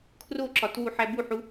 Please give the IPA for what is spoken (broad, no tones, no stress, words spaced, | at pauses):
kʰroǁɒt wuħæbuħu